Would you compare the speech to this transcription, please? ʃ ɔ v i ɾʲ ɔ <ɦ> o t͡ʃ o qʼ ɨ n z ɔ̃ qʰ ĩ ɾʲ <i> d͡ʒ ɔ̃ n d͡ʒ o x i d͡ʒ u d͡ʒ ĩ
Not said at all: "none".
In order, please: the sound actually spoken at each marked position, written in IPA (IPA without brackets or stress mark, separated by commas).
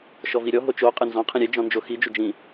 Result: ɦ, e